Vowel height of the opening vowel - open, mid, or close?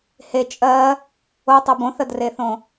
mid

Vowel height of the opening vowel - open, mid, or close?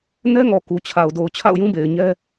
mid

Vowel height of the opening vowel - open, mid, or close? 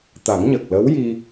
open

